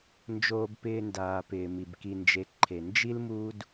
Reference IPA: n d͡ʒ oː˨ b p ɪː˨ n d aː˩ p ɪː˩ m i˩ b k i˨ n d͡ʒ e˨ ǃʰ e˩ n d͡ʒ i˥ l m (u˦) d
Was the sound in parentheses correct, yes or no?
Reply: yes